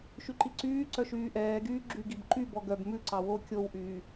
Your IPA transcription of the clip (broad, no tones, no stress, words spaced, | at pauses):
ʃyǃiǀyːǀœ ʃyːʔɛːɡyː ɡ͡ǁy ɡibǃy bɔɡœb mʉ ǀɑwo kʲowʔyː